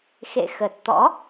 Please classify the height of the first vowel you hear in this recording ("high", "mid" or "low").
mid